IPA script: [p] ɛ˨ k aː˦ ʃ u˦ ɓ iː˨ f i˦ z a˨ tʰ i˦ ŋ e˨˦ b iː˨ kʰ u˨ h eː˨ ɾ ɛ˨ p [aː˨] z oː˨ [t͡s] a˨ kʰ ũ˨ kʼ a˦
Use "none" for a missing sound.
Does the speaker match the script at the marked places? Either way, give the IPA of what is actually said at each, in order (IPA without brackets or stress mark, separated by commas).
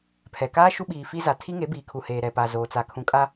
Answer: pʰ, a˨, t͡s